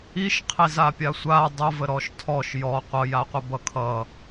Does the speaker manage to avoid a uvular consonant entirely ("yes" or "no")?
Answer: no